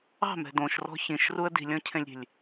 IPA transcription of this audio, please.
ɑ̤mɛ̤ dõʃrɔ̤ çĩʃruə̯ di̤lʲɔ̃cʰẽlʲɾʲe̤lʲ

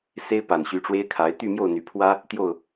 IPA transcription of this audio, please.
se˥ɪ̯pa˨˩nɕy˧˥ʈ͡ʂwe˥ɪ̯ kʰa˧˥ɪ̯ t̪y˥˧mjo˥˩ʊ̯n̪y˨˩pʰwä˥ | t̪jo˥˩ʊ̯

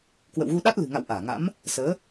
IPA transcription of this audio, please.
kwə̰˧˨wɣu˧ɗa˦˥t̚ lɨ̤˨˩ŋa̰˧˨w ʔaː˧˩ŋa̰˧˥m | səː˨˦

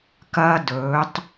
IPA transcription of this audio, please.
kɐː˦dɵː˨˦tˤ

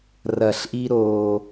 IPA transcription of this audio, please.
rɐ˧˩ɬʔi˥ɾoː˧

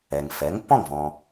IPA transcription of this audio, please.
ɛ˩ŋfɛ˩˥ŋ pɔ̃˥˩ŋvɔ̃˩

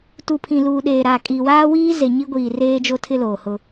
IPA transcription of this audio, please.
tu˨pʰĩ˨luː˨ɗeː˨ ɾa˨kʼi˨ waː˦wiː˦ ze˨ɲi˦ɡʷiː˨ reː˦d͡ʒo˦tʰɪ˦ loː˨hʊ˦

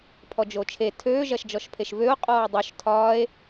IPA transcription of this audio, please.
pʰɔd͡ʒot͡ʃʰe tʰøː ʒɐʃd͡ʒɔʃpʰeʃvøo̯ qʼɔːdˤoʃ tʰɒːe̯

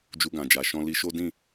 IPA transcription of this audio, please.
d͡ʒu˧ɡã˨d͡ʒa˨ʃɔ̃˧ li˧ʃo˦ dĩ˦˨

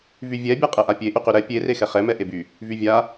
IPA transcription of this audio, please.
vyvʲɛ bʲaqʼɛʔapʲe ʔyqyɾɛ pʲe rexɛχɛ mɛʔeby | vyvʲa

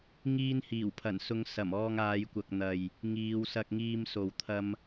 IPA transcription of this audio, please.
ŋiː˧nhiː˨˩wpʰɐ˨˩n sʊ˨˧ŋsɐ˨˩m ɔː˧ŋaː˨˧jkʷɐ˨k̚n̪ɐ˨j | ŋiː˨˧wsɐ˧k̚ŋiː˧mso˨w t̪ʰɐ˧m

